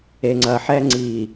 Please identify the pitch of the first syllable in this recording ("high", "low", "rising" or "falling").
low